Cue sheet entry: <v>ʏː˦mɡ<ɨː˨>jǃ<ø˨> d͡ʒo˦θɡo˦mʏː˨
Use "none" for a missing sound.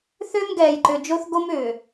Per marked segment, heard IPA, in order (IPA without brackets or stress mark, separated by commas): θ, ɛː˨, ø˨